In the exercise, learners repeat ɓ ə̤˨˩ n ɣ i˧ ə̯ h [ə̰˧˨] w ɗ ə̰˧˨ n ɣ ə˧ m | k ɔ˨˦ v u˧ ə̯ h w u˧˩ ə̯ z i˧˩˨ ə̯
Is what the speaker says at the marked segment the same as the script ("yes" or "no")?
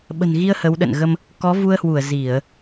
no